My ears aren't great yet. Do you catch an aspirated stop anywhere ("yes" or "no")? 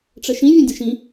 no